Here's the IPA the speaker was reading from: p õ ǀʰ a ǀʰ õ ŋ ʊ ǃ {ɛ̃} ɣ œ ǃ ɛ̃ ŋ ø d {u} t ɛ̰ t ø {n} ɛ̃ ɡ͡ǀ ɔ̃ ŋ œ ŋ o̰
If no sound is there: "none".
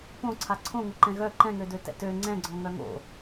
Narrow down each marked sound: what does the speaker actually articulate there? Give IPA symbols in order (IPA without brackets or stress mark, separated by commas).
ɛ̃, ø, ŋ͡ǀ